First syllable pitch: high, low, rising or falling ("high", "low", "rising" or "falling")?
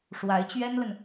rising